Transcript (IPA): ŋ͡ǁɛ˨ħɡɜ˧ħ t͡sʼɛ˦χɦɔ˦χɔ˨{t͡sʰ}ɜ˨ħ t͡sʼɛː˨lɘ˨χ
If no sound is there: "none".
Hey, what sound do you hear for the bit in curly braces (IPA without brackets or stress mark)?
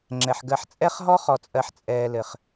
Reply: t͡sʼ